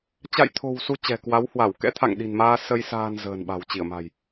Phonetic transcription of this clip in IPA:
t͡ɕ a̰˧˨ j t̪ʰ o̤˨˩ w s u˧ t͡ɕ ɛ̤˨˩ k w a˨˦ w h w a˧˩ w k ɛ̰˧˥ t̪ʰ a̰˧˨ ŋ ɗ i̤˨˩ n m aː˧ s ə˧ j s a̤ː˨˩ n z ə̤ː˨˩ n ɓ a̤˨˩ w t͡ɕ i˧˩ ə̯ m a̤˨˩ j

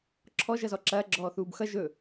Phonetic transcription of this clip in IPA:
ǁʰ ɔ ʒ ʌ z ɔ ǁ ɐː ɡ͡ǁ ɔː θ uː b x ʌ ʒ ɵ

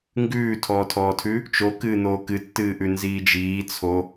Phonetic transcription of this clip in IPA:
ŋ ɡ ʉː tʰ ɔː tʰ ɔː tʰ ʉ | t͡ʃ o k ɨː n̪ oː k ɨ tː ɨː ʔ ʉ n z iː d͡ʒ iː t͡sʰ o

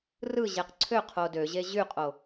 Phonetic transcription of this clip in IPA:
r ɯ ʑ e q ǀʰ ø qʰ o d ø ʑ e ʑ y qʼ o

